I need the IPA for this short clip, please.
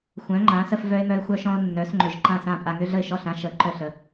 xʷ œ̃˨˥ ŋ͡ǃ ã˨˥ s ə˦ f v œ˦ ɪ̯ m œ˦ ɪ̯ xʷ œ˦ ʃ ɔ̃˦ ʊ̯ nː œ˨˥ s ŋ͡ǃ ʏ˧˩ ʒ ǃ ã˥˩ s ã˥˩ pʼ a˦ ŋ ʏ˦ ɮ ə˥˩ ɪ̯ ʃ ɔ˥˩ ɬ ã˦ ʃ ə˨˥ ǃ œ˥˩ ɬ ə˧˩

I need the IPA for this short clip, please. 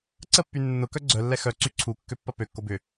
ǀ ə pː y nː ʊ k œ ɡ͡ǀ œ lː ɛ x œ ǀ y ǀʰ u kː ø pː ɐ p ø kː o b ʏ

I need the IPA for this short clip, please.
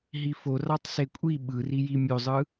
ɦ i f o r ɑ tˤ s e kʷʼ i ɓ ɯ r i j i mʲ o zˤ ɯ

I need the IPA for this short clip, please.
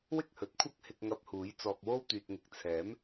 w ɪ˥ k̚ h ɵ˨˥ t̚ kʷʰ ɐ˥ k̚ h ɪ˧ k̚ ŋ ɐ˧ p̚ h uː˨˥ j t͡s ɔː˧ k̚ w o˥ w t̪ yː˨ t̚ ŋ ɪ˨ k̚ t͡sʰ ɛː˨˥ m

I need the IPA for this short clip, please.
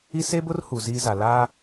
i˦ s e˦ b ʊ˦ r h u˨ z iː˦ z a˨ l aː˦

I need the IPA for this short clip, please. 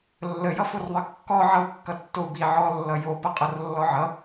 lː ə j ʌ f o r ðˤ ʌ kː ɔ ʕ ʌ u̯ kː ʌ tː o u̯ b i ʕ ɔ lː ʌ j o p ʌ qʼ ʌ r lː ɔ ʕ ʌ

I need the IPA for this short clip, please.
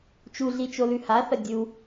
t͡ʃ u ɮ i t͡ʃ o l ʉ h a θ ɐ dʲ u

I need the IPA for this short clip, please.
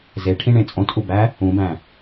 z e ʈʰ ĩ ɳ ẽ t͡sʼ õ t ʔ u b æ | ũ b æ̃

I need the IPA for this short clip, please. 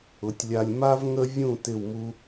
ʊ˩˧ tʲ lʲ a˧ lʲ m a˥ v ŋ ə˥ vʲ ũ˥˧ t ɪ˥˧ w m u˥

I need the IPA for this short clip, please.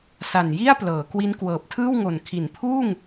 s a˨˩ n j i˥˩ a̯ p l ɤː˩˦ k w i˦˥ n k w ɤː˨˩ p̚ tʰ ɯː˥˩ w ŋ o˨˩ n kʰ i˩˦ n pʰ uː˥˩ ŋ

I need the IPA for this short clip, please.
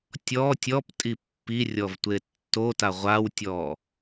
tʲ ɔ tʲ ɔ p tʼ i pː i rʲ ɔ v tʷ e tː o t a ʁʷ a w tʲ ɔ

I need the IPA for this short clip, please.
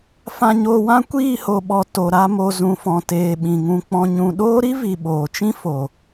f ã˧ ɲ oː˧ w ã˦ kʷ iː˦˨ h o˨ ɓ ɔ˨ t o˨ ɾ a˦ m o˧ z ũ˨ f ɔ̃˨ t eː˨ ɓ ĩ˨ ŋ ũ˧ k͡p ɔ̃˧ ɲ ũ˧ ɗ oː˦ ɾ i˦ v i˨ ɓ oː˨ t͡ʃ ĩ˦ f o˨

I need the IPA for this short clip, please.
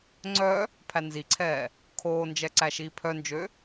ŋ͡ǀ œ | pʰ æ n z i ǀʰ ɛː | kʰ oː n d͡ʒ ɛ ǀ æ ʃ iː pʰ œ n d͡ʒ ø

